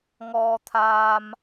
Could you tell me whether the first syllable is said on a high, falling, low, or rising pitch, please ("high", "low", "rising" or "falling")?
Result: high